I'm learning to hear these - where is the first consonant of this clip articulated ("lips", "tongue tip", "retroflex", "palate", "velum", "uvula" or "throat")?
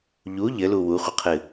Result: palate